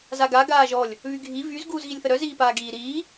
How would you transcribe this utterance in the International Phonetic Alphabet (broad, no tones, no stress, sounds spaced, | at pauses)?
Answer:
z a ɡ a ɡ aː ʒ ɔ lʲ | β y ɡʱ i v y z ɡ uː z ɣ i lʲ θ ə ɾ œ z iː p aː ɡ iː ɾ iː